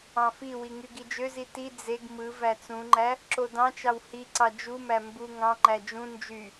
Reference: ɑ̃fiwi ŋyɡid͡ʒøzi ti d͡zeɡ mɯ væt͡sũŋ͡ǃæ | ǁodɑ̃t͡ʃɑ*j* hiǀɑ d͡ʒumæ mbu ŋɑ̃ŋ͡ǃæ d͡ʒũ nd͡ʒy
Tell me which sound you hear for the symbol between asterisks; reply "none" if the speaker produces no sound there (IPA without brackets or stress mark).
w